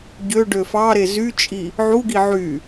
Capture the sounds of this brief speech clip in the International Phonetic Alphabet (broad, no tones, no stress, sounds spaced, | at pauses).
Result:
ɟ ø ɖ ø f ɑ ɾ e z y t͡ʃʼ i | ʕ u ɡ i ʕ y